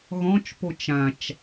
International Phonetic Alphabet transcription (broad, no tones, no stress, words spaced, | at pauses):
ɣɔ̃t͡ʃ pot͡ʃãt͡ʃ